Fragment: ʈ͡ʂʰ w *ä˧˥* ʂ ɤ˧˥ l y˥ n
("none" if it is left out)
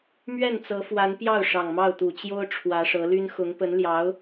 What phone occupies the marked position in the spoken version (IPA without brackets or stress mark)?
ä˧˥